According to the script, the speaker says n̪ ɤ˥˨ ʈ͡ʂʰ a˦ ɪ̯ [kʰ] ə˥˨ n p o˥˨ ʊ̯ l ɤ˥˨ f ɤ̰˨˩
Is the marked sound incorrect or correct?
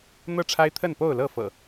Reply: incorrect: t̪ʰ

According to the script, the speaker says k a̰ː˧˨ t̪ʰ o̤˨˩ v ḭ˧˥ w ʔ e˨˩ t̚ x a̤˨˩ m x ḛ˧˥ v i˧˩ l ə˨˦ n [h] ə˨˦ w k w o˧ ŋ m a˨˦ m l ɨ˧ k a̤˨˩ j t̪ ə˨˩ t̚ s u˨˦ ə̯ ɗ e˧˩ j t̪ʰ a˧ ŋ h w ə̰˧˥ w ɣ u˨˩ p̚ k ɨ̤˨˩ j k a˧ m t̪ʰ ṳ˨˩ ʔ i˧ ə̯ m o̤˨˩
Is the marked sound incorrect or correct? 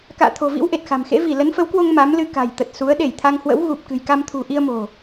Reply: incorrect: f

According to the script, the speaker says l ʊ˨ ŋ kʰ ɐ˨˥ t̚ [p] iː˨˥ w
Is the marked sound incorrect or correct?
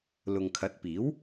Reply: correct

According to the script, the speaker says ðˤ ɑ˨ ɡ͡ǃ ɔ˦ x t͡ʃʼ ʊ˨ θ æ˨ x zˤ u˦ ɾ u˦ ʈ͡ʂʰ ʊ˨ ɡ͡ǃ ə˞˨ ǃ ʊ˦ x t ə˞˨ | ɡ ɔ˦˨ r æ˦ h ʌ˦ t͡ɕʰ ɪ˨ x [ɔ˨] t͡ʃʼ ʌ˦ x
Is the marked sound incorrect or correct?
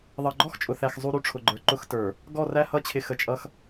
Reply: incorrect: ə˨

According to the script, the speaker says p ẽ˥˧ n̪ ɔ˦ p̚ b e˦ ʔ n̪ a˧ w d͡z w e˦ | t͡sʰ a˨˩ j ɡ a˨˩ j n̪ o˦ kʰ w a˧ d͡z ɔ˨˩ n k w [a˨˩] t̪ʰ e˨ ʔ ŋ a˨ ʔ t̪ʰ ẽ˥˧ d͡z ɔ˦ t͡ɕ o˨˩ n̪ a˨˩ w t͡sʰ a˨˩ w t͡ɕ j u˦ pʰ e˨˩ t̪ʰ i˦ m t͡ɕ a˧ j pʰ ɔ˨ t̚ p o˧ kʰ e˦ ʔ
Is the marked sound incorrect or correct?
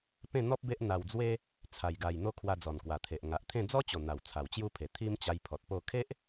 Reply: correct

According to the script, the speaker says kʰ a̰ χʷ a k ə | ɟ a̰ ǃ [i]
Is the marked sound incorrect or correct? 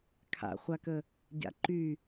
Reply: incorrect: y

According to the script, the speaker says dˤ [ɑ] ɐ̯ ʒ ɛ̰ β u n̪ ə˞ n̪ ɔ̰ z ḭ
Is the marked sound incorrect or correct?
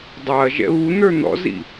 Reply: correct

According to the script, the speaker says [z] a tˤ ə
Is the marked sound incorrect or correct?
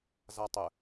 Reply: correct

